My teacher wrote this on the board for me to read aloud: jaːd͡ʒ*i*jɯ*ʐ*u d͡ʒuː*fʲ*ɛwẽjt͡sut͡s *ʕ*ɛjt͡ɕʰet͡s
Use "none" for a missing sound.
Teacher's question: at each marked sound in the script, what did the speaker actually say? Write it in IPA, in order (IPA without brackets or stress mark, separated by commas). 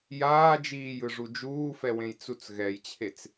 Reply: iː, ʐ, f, ɣ